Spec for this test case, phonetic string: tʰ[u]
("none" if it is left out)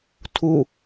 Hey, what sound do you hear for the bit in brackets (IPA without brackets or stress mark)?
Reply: u